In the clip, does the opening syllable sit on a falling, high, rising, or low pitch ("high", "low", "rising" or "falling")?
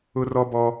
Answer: high